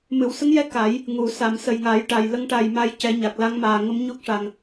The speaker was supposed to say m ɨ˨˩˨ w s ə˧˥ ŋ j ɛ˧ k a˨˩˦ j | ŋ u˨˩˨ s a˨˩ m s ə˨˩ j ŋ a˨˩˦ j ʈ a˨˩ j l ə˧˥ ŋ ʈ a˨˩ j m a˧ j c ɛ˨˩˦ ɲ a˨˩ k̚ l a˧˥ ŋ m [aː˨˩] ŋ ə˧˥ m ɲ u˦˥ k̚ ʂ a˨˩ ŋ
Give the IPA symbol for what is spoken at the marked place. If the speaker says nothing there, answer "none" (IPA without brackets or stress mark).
aː˨˩